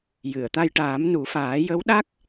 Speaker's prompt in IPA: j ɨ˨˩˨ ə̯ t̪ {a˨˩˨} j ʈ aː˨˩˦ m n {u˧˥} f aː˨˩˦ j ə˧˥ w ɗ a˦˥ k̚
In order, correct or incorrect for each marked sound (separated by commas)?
incorrect, incorrect